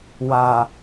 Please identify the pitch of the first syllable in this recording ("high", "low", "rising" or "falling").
low